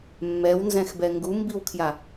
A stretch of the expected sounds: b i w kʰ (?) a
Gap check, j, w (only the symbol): j